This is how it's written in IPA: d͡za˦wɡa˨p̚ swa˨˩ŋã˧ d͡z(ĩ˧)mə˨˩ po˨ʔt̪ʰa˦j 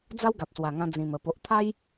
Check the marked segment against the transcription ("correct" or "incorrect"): incorrect